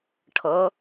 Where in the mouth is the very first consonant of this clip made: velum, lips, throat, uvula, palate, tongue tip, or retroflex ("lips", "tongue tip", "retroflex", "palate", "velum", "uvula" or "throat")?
retroflex